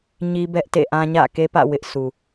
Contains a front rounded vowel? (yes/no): no